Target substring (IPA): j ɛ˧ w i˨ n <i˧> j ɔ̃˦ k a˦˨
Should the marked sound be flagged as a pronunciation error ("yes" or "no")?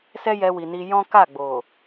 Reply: no